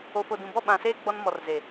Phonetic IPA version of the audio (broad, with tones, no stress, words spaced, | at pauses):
o˨fo˨dũ˨bɔ˦˨ ɓã˨seː˦ ɡ͡bɔ˦nmɔ˨rze˨